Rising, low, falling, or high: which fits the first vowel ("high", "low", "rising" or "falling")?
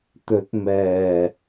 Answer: rising